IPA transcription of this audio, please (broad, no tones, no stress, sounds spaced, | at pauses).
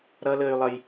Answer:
ɾ ʌ l əː y̯ lˠ ʌ j